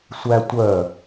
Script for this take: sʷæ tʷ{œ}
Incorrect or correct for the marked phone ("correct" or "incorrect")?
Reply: correct